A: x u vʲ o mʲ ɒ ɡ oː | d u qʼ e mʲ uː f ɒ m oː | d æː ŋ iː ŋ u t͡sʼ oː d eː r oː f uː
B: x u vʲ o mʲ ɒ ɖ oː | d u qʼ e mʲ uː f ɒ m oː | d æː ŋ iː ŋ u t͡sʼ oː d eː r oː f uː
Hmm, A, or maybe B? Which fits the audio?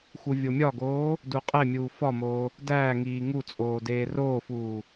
A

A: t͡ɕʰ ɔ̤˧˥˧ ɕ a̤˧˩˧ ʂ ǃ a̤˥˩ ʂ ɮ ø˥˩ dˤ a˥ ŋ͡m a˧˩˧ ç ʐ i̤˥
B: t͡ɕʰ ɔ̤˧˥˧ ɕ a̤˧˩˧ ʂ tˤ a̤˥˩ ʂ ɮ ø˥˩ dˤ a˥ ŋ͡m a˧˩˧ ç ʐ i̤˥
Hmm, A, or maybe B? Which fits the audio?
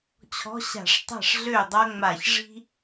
B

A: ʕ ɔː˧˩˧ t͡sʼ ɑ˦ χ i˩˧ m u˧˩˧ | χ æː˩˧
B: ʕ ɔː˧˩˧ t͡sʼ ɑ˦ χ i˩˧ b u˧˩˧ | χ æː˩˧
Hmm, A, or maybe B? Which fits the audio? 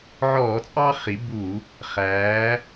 B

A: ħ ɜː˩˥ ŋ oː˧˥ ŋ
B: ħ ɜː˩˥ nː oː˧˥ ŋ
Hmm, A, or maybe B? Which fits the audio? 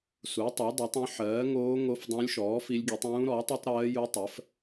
A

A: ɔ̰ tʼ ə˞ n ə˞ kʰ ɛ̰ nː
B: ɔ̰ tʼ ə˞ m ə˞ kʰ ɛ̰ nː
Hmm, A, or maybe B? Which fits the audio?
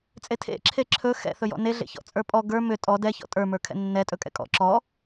B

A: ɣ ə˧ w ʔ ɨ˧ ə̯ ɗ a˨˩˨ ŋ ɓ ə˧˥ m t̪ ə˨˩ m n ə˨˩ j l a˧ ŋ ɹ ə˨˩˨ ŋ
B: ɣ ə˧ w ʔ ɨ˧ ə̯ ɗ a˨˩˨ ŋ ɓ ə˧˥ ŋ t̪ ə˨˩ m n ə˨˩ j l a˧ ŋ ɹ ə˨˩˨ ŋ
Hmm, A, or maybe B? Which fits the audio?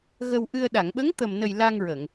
B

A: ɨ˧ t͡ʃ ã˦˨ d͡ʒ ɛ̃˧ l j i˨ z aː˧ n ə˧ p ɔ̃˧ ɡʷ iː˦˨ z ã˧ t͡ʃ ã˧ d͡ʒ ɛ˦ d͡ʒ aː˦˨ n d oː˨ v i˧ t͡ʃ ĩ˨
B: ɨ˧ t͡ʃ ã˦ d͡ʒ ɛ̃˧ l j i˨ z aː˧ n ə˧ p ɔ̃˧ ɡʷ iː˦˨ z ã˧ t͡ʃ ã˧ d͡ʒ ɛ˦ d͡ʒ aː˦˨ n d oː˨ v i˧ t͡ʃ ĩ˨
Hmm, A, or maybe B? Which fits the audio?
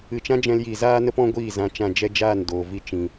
B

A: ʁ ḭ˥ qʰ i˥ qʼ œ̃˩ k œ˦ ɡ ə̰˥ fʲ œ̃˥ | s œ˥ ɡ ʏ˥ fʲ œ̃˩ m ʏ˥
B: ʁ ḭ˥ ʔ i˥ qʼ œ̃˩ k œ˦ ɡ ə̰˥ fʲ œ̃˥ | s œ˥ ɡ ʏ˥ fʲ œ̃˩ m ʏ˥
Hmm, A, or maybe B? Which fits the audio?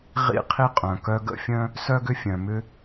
A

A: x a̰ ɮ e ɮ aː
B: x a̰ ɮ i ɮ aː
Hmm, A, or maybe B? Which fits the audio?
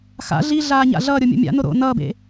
B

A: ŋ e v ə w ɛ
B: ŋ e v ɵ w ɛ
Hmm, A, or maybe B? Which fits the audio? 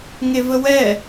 A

